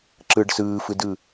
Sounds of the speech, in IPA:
ǁɯɖ sɯːfɯdɯ

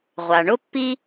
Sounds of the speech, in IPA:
ʁʷa˩ɳʊ˥pːi˥

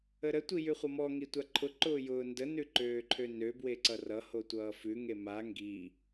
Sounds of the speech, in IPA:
əɾə tʷijʉχʷʌmɔ ŋitʷaǃʰʊ ǃʊːjʊːndə nʉǃøːǃʰønø bweǀʌrʌ hotʷʌːfʉ ŋema ŋɡi

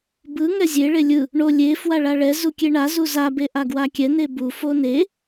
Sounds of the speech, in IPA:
bɯ ŋɛzʲe ɭelʲɯ | ɳo lʲe fwaɭaɭɛ zukʲeɳa zuza beʔaɡwakʲɛ nebu fone

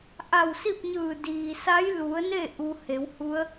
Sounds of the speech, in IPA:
ʔa˧˩wsi˥˨p̚ɲɯː˧˩ diː˩sa˧˥jlu˩˧ə̯ne˥˨ ʔu˧ he˩˧w hu˧˥ə̯

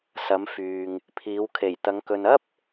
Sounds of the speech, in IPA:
sɐ˨˧mfyː˨ŋ | pʰiː˨˧wkʰe˨˩jt̪ɐ˨˧ŋ kɵ˨nɐ˥p̚

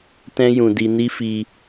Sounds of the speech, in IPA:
tɛ̃˦jũ˧ di˧ni˦fi˧

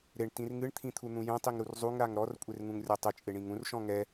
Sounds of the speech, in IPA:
ɾeɳtĩr ŋɨɳt̪ʰĩt̪ʰun̪ũ jɛ̃tˤiŋɾur zˤuŋɾaŋ ɾɔrkʷʼerŋũŋrʲɔ tˤɨt͡ʃʼeɳĩŋ ũrʃɔ̃ ŋɛ

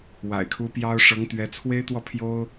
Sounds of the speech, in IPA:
wa̰˨˩ɪ̯kʰu˧˥ pjɑ˥ʊ̯ ʂɤ˧˥ŋt̪ɥɛ˧˥ t͡sʰwe˥ɪ̯t̪wɔ˥˩ pʰjo˥ʊ̯

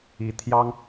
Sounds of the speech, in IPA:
i˧˥t̪ʰjɑ˥ŋ

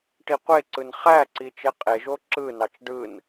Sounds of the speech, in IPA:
ʈiqʷeǀɯn χæǀi t͡ʃeqʼeʒo ǁɯnɑt͡ʃ ɖɯn

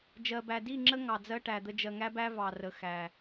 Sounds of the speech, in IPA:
d͡ʒɜ˨bæ˨ di˦˨ŋ͡ǁə˦ ŋɑ˨d͡zɜ˦ʈæ˨d̪ə˦ d͡ʒɜ˨ŋæ˦bæ˦ vɑ˨rə˨ xæ˨

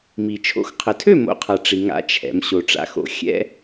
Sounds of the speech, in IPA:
mi˩ t͡ʃʰo̰˨˦xqʰə˩tʰø˥˨ mo̰˨˦qʰa˩ ʈ͡ʂi˩ŋa̰˨˦ t͡ʃʰɛ̰˩m ɕo˩ʈ͡ʂa̰˨˦xo̰˨˦ xʲɛ̰˦

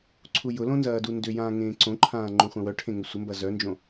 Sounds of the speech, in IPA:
ǀʰujʊlõ nzɐːdundʏjãː ŋẽːǀõǃʰãː ŋ͡ǃõχʷœ̃wœʈʰẽ ŋʏsʷəmbɐ zœnd͡ʒõ

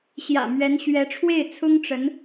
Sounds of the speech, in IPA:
ɕjä̰˨˩ mɥɛ˧˥nɕɥɛ˧˥ ʈ͡ʂʰwe˥˩ɪ̯t͡sʰʊ˥ŋʈ͡ʂə˧˥n

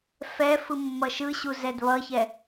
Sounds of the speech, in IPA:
fɛ fɯmːʌʃɯɕu zɛdβʌçɛ

